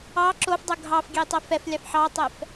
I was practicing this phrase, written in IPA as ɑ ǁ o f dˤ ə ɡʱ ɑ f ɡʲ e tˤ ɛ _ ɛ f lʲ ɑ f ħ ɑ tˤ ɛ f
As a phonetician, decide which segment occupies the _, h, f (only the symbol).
f